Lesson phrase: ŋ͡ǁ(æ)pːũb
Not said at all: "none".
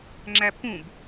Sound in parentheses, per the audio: æ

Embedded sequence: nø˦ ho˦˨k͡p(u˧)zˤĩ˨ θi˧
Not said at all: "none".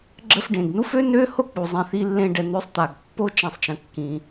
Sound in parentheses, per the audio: u˨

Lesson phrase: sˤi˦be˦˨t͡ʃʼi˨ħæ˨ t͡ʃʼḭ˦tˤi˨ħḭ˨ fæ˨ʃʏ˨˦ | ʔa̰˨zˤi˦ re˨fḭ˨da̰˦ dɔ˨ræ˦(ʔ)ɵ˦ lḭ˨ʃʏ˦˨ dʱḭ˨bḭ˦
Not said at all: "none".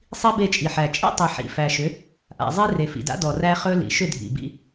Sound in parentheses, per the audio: χ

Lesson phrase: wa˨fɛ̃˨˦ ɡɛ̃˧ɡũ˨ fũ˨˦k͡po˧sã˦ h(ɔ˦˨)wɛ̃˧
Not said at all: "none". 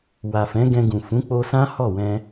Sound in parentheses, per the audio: ɔ˦˨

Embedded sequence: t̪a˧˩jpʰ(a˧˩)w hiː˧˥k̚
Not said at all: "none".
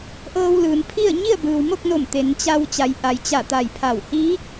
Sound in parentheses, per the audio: a˧˩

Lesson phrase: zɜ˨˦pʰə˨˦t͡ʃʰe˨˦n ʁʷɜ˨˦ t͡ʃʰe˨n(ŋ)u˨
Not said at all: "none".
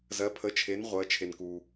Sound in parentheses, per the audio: k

